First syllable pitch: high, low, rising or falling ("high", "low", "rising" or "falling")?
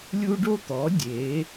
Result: high